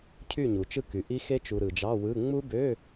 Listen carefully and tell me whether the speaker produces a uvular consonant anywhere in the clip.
no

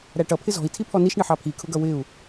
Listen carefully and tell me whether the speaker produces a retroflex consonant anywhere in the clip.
yes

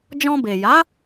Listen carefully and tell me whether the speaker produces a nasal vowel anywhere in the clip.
yes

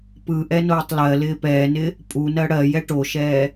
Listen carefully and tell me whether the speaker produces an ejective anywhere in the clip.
yes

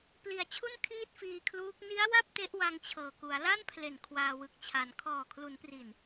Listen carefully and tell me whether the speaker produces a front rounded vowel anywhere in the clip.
no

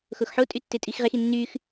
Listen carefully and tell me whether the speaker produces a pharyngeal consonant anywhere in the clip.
yes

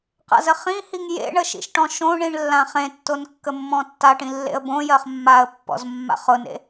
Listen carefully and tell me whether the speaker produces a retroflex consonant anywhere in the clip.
yes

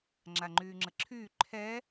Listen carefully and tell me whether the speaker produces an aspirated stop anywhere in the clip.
yes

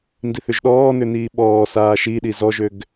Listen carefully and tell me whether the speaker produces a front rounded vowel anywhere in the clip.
yes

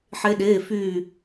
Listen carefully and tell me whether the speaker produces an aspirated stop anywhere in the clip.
no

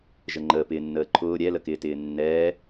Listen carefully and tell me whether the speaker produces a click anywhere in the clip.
yes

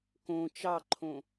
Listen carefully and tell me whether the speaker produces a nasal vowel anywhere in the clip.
yes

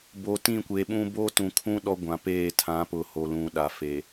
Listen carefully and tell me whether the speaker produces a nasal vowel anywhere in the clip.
yes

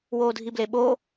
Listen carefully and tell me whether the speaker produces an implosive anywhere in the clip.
yes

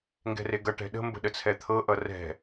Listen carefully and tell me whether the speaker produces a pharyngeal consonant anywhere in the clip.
no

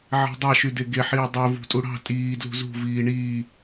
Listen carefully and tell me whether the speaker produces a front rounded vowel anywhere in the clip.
yes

